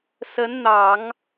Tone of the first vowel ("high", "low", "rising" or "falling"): rising